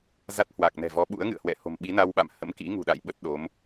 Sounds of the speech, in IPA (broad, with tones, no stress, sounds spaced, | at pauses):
z a˦˥ t̚ h w a˨˩ k̚ n ɛ̤˨˩ v ɔ˨˦ ɓ ṵ˧˥ ə̯ ŋ ɨ̰˧˨ ə̯ h w ɛ̰˧˨ h o̤˨˩ m ɓ i˨˦ n a˧ w ɓ a̰˧˨ m h ə̰˧˥ m k ḭ˧˥ ŋ ṳ˨˩ ɗ a̰˧˨ j ɓ ə˦˥ t̚ ɗ o˨˦ m